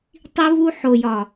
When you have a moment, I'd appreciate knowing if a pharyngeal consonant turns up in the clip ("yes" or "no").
yes